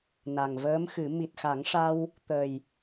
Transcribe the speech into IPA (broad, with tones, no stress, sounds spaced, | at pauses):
n a˨˩ ŋ v əː˧˥ m x ɨ˨˩˦ m i˨˩ t̚ x a˨˩˦ ŋ ʂ a˧ w | t̪ ə˨˩ j